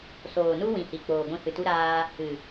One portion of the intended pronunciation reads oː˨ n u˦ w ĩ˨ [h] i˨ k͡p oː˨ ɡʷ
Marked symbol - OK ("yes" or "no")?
yes